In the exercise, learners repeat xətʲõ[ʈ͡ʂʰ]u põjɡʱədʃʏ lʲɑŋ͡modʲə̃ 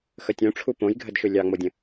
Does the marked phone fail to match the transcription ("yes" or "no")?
no